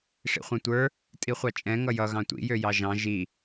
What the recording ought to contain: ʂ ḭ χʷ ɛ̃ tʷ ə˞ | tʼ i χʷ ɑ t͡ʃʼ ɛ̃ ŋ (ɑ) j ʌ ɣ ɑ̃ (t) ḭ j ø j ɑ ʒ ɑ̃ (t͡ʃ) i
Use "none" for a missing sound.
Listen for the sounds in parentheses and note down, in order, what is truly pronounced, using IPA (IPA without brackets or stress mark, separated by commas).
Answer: ʌ, tʷ, ʒ